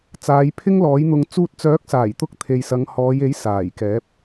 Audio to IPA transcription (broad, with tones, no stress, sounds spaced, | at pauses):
t͡s aː˨˧ j pʰ ɪ˥ ŋ l ɔː˨˥ j n̪ ʊ˧ ŋ t͡s uː˧ t̚ t͡s œː˨˥ k̚ s aː˨˩ j t̪ ʊ˧ k̚ t̪ʰ e˨ j s ɐ˨˧ ŋ h ɔː˨˧ j e˨˥ j s aː˨˩ j k ɛː˨˥ p̚